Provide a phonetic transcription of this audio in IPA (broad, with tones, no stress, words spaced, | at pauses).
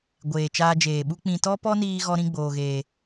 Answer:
ɡʷeː˨ t͡ʃaː˧d͡ʒeː˨ɓu˦ k͡pĩ˨tɔ˦pɔ˦ niː˦ɣɔ˦ ɾĩ˦ɡ͡boː˨ɣeː˨